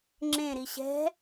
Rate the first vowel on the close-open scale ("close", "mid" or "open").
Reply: mid